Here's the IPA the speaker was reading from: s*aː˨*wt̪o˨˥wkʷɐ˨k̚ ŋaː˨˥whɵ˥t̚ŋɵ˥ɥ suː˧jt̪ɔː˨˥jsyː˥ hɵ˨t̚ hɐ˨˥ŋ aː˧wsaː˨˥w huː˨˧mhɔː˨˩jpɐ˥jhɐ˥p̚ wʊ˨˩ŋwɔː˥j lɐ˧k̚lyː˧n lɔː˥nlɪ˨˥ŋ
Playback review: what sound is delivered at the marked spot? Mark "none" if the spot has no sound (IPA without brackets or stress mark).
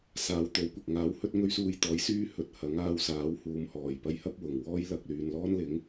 aː˨˧